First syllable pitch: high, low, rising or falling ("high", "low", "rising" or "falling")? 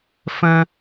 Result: high